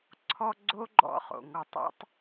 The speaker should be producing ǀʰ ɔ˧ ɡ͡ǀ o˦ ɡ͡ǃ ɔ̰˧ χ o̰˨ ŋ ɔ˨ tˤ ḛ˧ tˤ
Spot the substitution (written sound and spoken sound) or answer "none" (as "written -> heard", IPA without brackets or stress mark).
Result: none